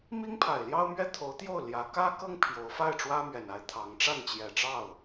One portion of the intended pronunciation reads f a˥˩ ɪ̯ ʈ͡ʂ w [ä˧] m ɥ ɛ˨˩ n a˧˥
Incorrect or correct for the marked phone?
incorrect: ä˥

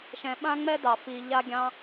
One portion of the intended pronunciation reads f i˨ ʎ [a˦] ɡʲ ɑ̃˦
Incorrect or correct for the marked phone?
correct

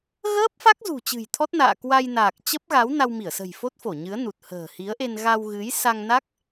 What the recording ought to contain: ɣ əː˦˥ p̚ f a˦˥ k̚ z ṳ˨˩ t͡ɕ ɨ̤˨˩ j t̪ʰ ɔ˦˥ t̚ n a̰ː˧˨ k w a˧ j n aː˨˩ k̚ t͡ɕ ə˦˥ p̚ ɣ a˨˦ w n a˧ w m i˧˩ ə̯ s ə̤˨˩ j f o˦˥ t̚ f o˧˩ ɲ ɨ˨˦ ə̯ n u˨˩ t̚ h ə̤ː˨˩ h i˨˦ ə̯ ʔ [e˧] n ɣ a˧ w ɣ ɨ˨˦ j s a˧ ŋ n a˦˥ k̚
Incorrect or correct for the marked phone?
correct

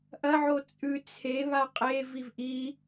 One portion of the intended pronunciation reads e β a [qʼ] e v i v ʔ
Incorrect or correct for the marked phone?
correct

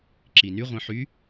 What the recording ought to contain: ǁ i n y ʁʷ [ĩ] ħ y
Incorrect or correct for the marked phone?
correct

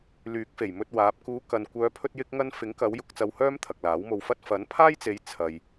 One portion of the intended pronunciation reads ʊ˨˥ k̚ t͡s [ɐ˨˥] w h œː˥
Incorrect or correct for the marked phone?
incorrect: ɐ˧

